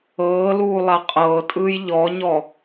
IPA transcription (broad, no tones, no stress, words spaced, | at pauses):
ɤː luːlˠaqʼɤːtʼɯːj ʎɔɲɔ